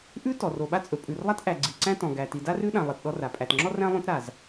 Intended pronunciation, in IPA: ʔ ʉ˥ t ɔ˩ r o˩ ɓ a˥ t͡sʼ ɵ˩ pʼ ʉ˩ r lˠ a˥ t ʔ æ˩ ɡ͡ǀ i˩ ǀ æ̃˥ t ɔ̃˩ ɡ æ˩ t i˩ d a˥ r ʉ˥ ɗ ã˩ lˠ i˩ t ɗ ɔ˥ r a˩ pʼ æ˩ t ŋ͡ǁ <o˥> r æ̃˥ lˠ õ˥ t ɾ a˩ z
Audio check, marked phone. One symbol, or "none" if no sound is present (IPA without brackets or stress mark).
ɔ˥